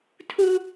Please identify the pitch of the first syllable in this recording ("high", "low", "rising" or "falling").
high